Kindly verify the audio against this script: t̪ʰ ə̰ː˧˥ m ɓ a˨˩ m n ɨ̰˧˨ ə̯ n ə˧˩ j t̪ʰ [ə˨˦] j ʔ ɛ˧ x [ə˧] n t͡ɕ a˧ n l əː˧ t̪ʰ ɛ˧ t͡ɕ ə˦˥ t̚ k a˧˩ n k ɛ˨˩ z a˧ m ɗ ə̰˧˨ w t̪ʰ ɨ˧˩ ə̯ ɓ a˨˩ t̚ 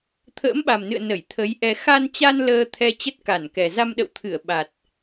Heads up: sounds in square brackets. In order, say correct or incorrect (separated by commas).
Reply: correct, incorrect